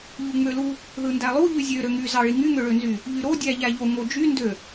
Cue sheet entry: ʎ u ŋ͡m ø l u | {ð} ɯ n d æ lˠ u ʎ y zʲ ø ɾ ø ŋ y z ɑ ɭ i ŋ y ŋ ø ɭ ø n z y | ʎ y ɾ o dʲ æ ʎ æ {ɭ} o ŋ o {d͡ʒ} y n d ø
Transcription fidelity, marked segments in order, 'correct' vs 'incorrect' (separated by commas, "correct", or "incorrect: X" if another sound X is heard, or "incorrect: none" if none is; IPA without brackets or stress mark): correct, incorrect: ʎ, correct